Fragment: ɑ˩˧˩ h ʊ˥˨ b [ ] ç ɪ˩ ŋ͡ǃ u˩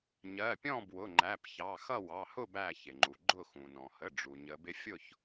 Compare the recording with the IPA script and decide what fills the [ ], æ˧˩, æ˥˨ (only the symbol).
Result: æ˧˩